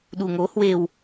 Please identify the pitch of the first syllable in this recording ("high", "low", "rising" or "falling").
low